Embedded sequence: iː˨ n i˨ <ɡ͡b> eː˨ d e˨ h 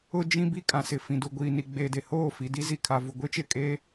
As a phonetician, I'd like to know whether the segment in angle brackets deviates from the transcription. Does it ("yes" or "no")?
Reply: no